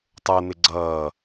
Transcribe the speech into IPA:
tˤ ə˞ n̪ ɪ ɡ͡ǀ ʌː

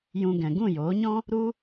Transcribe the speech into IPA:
j ũ˧ ɡ ɛ̃˨ ɡ ũ˦˨ j oː˨˦ ɲ ɔ̃˦ | ɾ u˦

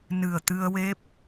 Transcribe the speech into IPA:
n ɨ˨˩ ə̯ t̪ ɨ˧ ə̯ w e˦˥ p̚

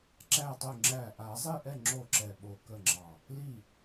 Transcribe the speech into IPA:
ǁ æ˥˩ tˤ u˥˩ ŋ͡ǁ æ˥˩ ʔ a˨˩˦ zˤ i˥˩ ʔ ɛ˥˩ ŋ͡ǁ o˥˩ ǁ ɛ˧˩ ɓ o˧˩ k ə˥˩ ŋ͡ǁ ɑ˧˩ | l i˥˩

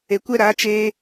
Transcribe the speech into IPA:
e˨ kʷ ɛ˦ ɾ aː˨˦ t͡ʃ eː˧

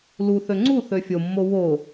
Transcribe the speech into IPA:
l u θ ø ŋ͡ǀ u θ ø fʲ o mː o w o

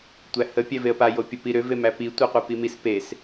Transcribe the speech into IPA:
tʷ æ h ə pʲ æ v e ə̯ p a j o pʲ ə p i ɾ ʏ v e m æ p i tʷ ə˞ qʷ e p i m i s p e s

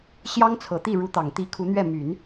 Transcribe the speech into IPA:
ɕ j ɑ˥ ŋ t͡sʰ ɤ˨˩ t̪ i˥˩ ɻ u˧˥ t̪ ɑ˨˩ ŋ t̪ i˧˥ kʰ u˧˥ n̪ ɥ ɛ˥˩ m y˨˩˦ n

